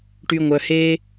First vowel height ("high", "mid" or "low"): high